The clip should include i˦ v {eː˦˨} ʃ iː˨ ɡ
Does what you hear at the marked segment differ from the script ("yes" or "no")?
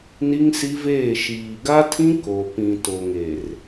no